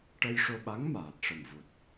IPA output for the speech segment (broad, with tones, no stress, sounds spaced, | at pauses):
ʈ ə˧ j ʂ o˧ ɓ a˧˥ ŋ m aː˨˩ t̚ ʂ ə˨˩ m v u˨˩ t̚